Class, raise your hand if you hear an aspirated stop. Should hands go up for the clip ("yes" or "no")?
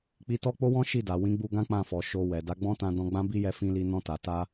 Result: no